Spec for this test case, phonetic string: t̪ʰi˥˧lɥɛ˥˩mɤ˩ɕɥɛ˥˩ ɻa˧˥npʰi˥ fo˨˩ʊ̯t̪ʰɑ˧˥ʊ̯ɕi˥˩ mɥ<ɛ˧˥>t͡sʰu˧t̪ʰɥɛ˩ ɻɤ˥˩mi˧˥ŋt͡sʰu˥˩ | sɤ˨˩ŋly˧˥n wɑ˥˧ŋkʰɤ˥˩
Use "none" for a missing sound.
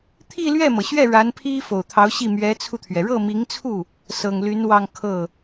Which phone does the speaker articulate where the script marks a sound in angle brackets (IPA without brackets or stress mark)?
ɛ˧˥